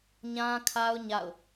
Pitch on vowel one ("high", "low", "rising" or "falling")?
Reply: high